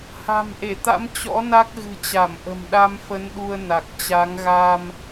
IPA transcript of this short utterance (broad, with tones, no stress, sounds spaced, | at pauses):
h a̤˨˩ m ʔ e˧˩ t̪ a̰˧˥ m t͡ɕ ɔ̰˧˥ n a˦˥ k̚ ɣ ɨ̤˨˩ t͡ɕ a˧˩ m ʔ ə̤˨˩ m ɗ a˧ m f ə˨˦ n ɗ u˧ ə̯ n a˨˩ k̚ t͡ɕ a˨˦ ŋ ɣ a˧ m